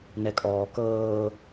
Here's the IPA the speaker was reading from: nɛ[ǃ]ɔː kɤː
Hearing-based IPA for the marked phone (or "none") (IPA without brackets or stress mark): kʼ